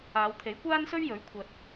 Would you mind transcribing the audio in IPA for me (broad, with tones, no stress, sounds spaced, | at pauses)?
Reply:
aː˨˧ w t̪ʰ e˨˥ j kʷ aː˥ n s ɵ˥ ɥ j ɵ˨˥ ɥ kʷʰ ɐ˨ t̚